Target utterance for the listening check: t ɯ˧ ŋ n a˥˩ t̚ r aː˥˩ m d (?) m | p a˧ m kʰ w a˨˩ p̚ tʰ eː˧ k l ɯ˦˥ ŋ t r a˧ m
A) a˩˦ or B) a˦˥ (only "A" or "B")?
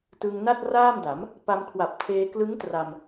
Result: A